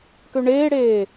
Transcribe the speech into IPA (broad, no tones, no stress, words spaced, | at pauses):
køɳeːɽeː